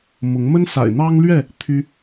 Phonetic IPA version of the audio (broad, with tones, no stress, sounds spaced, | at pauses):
m ʊ˨˦ ŋ m ə˦ n s a̰˨˩ ɪ̯ n̪ ɑ˦ ŋ l ɥ ɛ˥˨ | t̪ʰ y˦